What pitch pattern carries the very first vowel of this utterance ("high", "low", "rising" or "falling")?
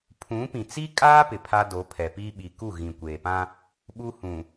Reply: rising